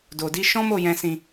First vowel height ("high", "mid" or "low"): mid